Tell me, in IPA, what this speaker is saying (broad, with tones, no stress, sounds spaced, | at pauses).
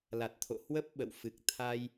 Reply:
l a˨˩ t̚ t̪ʰ o̰˧˨ h w ə˦˥ p̚ ɓ ə̰˧˨ w f ɨ˨˩ k̚ t̪ʰ a˧ j